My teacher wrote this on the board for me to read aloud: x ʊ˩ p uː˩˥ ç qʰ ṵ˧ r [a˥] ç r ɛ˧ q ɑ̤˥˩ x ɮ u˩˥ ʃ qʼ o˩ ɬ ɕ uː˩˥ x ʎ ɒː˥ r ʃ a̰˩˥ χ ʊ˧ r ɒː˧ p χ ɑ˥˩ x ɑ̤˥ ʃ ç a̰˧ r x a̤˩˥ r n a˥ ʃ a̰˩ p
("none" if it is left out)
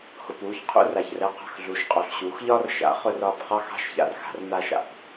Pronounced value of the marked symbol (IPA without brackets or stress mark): a˩